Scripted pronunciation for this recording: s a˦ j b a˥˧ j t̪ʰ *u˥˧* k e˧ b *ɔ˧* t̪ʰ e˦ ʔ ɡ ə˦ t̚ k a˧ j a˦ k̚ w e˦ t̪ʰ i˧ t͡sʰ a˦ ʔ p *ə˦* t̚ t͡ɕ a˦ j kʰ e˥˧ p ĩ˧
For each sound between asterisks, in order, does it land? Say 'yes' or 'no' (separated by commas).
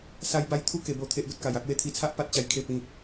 yes, no, no